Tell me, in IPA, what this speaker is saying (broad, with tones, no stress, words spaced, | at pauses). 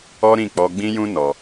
ɔ˦ɾĩ˦˨k͡pɔ˧ ɡ͡bĩ˦jũ˦ nɔ˧